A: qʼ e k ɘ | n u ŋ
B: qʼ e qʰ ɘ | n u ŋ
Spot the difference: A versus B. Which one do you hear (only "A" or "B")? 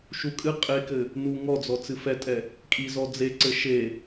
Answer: A